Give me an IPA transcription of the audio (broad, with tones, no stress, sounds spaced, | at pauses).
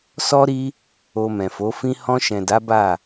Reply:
s ɔ˧ ɾ i˧ | o˧ m ɛ̃˨ f o˨˦ f ĩ˦ h ɔ̃˧ ʃ ɛ̃˨ d a˨˦ b a˦˨